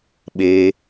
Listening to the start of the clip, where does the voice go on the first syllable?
low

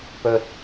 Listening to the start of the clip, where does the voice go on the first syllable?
low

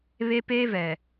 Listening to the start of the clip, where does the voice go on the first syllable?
high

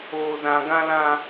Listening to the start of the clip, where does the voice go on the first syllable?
high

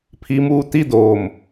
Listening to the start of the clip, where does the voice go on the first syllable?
low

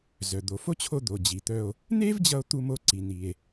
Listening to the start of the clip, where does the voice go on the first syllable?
low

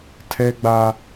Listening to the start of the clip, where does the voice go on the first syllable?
high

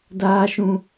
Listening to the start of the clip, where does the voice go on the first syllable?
high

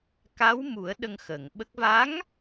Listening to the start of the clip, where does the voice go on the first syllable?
rising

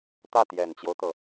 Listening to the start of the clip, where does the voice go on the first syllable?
falling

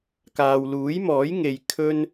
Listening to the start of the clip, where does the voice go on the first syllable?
low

